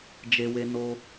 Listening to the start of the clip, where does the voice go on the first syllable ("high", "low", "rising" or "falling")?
high